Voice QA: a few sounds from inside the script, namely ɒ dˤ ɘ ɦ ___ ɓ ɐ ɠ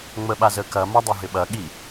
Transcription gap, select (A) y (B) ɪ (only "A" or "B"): B